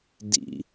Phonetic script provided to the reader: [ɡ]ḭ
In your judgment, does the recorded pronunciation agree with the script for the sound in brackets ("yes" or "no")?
no